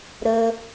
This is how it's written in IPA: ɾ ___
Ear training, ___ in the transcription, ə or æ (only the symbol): ə